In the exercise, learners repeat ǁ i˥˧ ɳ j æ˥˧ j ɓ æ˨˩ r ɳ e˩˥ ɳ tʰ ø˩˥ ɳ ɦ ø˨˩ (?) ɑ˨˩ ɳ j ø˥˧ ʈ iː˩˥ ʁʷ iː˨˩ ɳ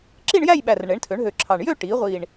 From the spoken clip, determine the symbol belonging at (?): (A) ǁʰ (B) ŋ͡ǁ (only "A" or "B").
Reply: A